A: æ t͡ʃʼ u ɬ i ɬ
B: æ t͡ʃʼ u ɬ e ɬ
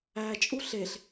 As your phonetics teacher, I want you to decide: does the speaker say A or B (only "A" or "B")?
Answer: B